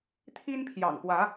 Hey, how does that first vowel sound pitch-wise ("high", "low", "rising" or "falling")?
high